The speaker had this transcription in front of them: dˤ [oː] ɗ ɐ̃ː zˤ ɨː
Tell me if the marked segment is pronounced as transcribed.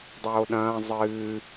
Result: yes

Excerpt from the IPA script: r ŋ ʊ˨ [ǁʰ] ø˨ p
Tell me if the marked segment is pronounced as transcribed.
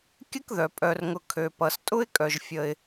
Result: no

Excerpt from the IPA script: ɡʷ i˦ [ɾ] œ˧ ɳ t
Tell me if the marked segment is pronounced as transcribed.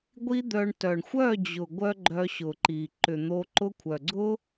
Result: no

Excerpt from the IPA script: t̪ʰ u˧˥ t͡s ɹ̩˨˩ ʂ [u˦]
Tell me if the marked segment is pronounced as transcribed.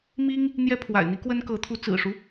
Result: yes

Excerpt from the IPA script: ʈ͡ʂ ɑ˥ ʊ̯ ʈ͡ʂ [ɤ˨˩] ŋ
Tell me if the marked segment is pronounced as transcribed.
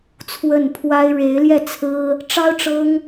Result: no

